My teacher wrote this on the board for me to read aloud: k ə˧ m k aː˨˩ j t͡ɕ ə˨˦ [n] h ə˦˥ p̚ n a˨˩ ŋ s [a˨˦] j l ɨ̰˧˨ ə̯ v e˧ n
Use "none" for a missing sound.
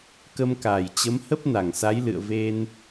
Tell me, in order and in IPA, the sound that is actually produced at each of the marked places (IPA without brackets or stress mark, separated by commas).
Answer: m, a˨˦